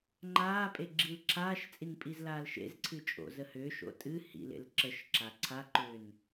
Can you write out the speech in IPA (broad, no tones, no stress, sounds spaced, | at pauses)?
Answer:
ŋ͡ǃ aː pʼ e ɡ͡ǁ i l ǁʰ aː ʃ t͡sʼ i n pʼ i z l aː l ʃ ḛ z ǀʰ ɨ t͡ʃʼ o̰ z ə h ʏː ʃ o̰ tʼ ɨ h ḭ l ḛ l ǁ ə ʃ ǁ a ǀʰ a ǃ ʏː n